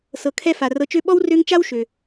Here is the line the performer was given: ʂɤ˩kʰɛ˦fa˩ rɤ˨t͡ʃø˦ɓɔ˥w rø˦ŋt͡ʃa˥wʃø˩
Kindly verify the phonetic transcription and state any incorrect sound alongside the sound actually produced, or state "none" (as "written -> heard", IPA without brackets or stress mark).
ʂ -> s